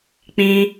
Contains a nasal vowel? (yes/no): yes